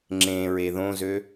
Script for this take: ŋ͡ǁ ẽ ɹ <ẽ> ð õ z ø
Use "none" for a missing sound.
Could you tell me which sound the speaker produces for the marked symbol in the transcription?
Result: e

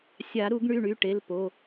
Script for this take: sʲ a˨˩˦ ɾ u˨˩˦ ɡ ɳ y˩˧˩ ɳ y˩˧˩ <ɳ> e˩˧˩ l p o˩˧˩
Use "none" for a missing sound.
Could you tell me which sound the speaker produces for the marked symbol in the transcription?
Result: ʈ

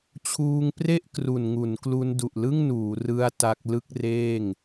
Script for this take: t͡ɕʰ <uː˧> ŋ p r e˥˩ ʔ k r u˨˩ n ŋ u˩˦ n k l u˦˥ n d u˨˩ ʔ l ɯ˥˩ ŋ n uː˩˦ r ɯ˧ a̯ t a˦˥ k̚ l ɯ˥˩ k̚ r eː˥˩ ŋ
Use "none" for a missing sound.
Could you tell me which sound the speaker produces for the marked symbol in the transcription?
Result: uː˧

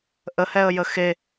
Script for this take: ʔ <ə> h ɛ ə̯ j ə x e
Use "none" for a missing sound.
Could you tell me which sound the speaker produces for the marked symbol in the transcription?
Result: ə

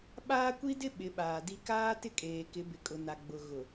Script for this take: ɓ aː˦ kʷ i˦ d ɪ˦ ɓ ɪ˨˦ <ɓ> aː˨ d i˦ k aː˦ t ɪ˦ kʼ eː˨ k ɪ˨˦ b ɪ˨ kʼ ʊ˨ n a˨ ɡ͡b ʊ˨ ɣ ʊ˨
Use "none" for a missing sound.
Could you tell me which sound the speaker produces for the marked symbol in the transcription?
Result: ɓ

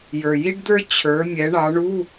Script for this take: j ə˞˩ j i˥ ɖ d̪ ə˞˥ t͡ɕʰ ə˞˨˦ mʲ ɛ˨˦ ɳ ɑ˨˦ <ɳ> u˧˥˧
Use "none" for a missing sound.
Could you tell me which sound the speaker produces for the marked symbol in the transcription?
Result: ɳ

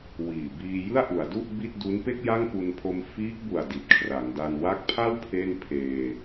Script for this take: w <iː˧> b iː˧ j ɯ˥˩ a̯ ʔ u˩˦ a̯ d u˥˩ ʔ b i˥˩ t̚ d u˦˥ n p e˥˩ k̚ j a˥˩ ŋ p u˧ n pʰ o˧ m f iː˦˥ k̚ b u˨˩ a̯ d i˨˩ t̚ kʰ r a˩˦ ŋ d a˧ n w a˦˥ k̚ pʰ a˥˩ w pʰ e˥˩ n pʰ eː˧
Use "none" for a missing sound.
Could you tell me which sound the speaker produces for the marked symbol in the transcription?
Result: iː˨˩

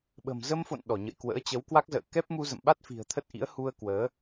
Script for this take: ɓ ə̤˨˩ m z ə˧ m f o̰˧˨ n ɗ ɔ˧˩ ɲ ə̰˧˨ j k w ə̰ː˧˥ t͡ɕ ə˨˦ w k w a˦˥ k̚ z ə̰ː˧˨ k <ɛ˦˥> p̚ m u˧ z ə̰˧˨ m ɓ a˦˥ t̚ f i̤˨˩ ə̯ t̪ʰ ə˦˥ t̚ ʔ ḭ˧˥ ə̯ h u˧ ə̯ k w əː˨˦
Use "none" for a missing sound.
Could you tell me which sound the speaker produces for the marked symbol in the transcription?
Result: ɛ˦˥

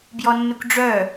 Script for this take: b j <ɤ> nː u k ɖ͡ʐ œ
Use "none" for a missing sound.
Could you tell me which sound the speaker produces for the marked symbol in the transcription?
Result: ɔ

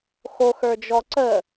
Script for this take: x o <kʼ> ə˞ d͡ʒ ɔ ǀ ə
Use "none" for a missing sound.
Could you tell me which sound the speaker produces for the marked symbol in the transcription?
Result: x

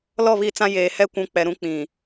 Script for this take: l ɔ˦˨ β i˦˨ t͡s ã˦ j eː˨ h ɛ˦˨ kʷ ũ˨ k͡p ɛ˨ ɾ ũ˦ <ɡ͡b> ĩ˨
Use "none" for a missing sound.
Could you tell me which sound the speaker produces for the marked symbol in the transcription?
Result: k͡p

